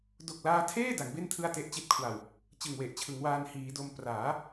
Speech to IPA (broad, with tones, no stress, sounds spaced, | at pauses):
d o˨˩ k̚ l aː˧ tʰ eː˥˩ d a˩˦ ŋ b e˥˩ n tʰ ɯ˥˩ a̯ t e˦˥ ʔ t͡ɕ i˦˥ t̚ kʰ w a˨˩ w | t͡ɕ ɯ˨˩ ŋ w e˨˩ ʔ t͡ɕʰ ɯ˩˦ ŋ w aː˧ n h iː˩˦ d o˧ m p r aː˩˦